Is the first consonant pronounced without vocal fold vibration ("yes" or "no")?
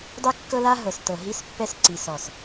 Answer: no